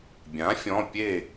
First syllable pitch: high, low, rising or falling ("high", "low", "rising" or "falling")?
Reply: rising